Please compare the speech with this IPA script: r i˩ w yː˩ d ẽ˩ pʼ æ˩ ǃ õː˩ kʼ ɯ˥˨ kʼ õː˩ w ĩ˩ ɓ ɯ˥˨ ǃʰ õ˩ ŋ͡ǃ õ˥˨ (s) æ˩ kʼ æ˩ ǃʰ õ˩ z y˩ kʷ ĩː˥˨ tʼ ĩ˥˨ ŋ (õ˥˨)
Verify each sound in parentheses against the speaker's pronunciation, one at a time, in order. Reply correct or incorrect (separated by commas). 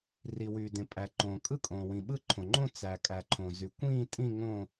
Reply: incorrect, correct